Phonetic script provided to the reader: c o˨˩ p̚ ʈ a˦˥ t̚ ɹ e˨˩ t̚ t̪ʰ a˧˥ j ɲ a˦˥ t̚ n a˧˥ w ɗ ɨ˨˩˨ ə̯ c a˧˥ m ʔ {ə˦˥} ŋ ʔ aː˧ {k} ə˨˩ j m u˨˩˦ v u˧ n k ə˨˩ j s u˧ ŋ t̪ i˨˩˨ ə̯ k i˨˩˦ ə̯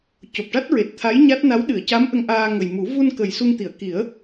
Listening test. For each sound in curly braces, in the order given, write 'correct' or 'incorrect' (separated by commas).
incorrect, incorrect